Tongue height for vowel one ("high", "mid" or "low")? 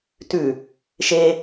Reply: high